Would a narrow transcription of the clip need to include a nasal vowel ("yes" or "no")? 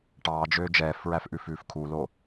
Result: no